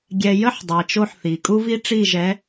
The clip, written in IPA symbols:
ɡʲ ɛ˨ j ə˦ ħ dˤ e˨ t͡ʃ o˦ ħ θ i˨ kʼ u˦ v i˦ ʈ͡ʂ i˦˨ ʒ ɛ˨˦

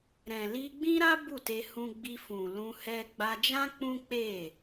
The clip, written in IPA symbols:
ɾ ɛ̃˨ l i˧ ɡ͡b ĩ˦ ɾ a˦ b u˦˨ t e˧ h ũ˧ ɡ͡b i˧ f ũ˨ l ũ˧ h ɛ˧ ɡ͡b a˧ d͡ʒ ã˦ k͡p ũ˦ k͡p e˦˨

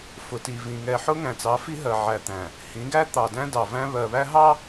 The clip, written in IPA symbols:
f ʊ˨ t i˨ v ĩ˨ ŋ ɛ˨ ħ ʊ˦ ŋ æ̃˨ t͡s ɑ˨˦ f i˦ ɦ ɜ˨ ʕ æ˨ t̪ æ̃˨ | h ĩ˨˦ ɡ æ˦ t̪ ɑ˨ d æ̃˦ d ɑ˨ v æ̃˦ β ɜ˨ β æ˦ ɦ ɑ˦

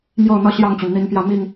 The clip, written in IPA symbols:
m j o˥˨ ʊ̯ n̪ ɤ˦ ɕ j ɑ˥˨ ŋ t͡ɕ y˩ n n̪ i˨˦ n p j ä˥˨ m i˥˨ ŋ

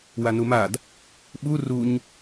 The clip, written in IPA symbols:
w a n u m a d | ɓ u r u ɲ

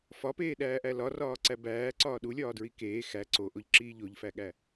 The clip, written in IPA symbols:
f ɒ p eː ɗ æː ʔ æ l ɒ r ɒː ǀ æ b æː ǀ ɒː ɗ u lʲ ɒː d ɹ i k eː x æ ǀ o ʔ o ʎ ǁ iː ʎ o ʎ f æ ɠ æ

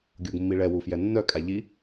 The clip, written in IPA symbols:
ɡʲ o ɡ mː i ɭ ɛ w u f j ɛ nː œ kʼ a ʎ i

